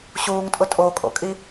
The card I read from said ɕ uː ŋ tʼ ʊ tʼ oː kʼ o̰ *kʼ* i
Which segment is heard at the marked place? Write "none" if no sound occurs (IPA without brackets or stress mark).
kʼ